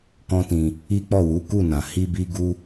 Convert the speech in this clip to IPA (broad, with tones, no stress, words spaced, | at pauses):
kɔ̃˦tĩ˧ | i˦ k͡pɔ˦˨wu˨˦ku˦˨nã˨ hi˧ bi˦ɡu˦